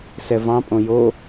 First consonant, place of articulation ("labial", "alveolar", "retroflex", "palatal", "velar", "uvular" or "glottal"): alveolar